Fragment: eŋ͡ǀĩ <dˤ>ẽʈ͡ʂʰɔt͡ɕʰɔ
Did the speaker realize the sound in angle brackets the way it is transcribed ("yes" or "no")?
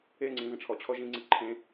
no